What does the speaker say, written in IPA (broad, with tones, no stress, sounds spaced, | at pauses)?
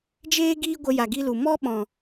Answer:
d͡ʒ eː˦ ɡ iː˦ ɡʷ ə˧ j a˨ ɡ i˦ l u˨ m ɔ˦ ɓ ɔ̃˨